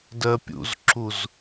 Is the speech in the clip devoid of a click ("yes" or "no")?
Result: no